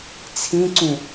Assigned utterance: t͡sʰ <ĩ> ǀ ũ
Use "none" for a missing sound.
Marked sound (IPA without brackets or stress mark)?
ĩ